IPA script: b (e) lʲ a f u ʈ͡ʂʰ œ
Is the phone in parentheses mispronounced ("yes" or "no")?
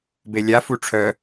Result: no